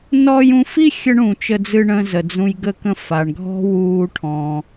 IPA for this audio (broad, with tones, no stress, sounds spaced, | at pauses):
n ɔ˧ j ũ˧ f i˥ xʲ ə˥ ɳ ũ˩ t͡ʃ ə˧ d͡z ɨ˧ ɳ ə̃˧ z ə˩ d͡z ũ˧ j ɡ ə˧ k ə̃˧ f a˩ ɳ ɡʱ ɔ̤˥ w uː˧ ʈʰ ɔ̃˩